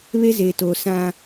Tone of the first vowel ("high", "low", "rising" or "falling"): high